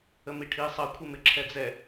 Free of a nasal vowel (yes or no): yes